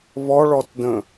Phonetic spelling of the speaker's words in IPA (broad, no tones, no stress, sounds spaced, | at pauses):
β ɔ ɭ ɔ t d ə̃